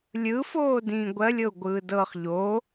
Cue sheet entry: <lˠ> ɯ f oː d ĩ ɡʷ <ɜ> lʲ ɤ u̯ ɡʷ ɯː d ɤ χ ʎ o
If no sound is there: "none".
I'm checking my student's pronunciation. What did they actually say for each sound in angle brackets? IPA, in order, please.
lʲ, ɜ

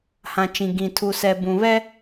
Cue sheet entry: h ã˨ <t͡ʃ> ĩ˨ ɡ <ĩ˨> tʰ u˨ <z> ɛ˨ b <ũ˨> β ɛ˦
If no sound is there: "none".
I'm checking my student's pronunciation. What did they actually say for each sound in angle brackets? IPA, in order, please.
t͡ʃ, ĩ˨, s, ũ˨

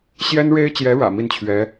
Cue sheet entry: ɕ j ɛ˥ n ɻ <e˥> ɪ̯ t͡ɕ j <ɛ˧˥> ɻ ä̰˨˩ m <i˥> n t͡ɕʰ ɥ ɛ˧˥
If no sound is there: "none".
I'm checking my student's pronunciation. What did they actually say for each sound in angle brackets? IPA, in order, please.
e˥, ɛ˧˥, i˥˩

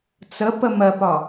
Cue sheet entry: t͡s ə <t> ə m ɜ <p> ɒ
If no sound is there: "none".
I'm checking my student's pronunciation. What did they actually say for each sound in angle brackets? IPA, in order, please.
p, p

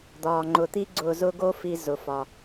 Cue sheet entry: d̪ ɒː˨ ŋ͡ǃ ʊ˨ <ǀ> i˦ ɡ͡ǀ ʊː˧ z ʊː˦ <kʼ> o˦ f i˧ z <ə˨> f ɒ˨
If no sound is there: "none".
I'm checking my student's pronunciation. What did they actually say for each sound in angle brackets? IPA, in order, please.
t̪, ɡ, ʊ˨

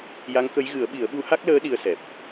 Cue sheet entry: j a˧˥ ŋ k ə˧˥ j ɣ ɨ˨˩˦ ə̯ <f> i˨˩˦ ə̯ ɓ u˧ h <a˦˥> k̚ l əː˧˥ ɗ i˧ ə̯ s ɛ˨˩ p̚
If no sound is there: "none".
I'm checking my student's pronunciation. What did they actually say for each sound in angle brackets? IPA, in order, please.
ɓ, a˦˥

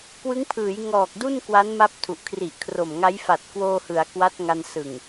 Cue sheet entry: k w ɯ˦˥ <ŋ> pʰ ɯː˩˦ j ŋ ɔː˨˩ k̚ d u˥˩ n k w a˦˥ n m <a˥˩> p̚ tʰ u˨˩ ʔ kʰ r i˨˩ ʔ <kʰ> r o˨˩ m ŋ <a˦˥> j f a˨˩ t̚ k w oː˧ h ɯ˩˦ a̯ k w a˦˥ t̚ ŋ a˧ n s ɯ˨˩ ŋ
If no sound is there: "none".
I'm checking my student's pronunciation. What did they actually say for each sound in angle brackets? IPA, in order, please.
ŋ, a˦˥, kʰ, a˦˥

